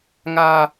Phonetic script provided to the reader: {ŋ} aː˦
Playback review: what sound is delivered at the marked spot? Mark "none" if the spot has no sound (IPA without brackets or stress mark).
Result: ŋ